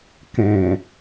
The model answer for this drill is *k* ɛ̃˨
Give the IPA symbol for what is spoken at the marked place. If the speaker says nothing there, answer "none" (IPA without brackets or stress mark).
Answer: k